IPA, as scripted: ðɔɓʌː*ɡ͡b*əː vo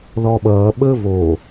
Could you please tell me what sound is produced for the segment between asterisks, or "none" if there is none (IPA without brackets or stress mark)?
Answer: ɓ